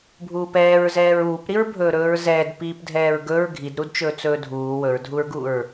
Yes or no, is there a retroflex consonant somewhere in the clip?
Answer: no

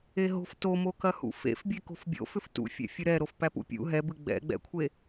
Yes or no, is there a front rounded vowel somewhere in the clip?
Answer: yes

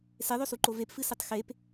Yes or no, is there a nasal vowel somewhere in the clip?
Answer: no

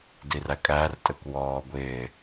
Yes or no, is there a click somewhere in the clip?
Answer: no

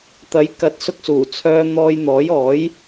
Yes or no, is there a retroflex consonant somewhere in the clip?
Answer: no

